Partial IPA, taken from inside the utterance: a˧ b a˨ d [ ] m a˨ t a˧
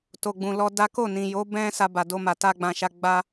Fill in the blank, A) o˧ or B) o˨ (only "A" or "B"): A